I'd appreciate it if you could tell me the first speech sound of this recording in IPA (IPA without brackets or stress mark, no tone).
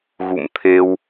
ɣ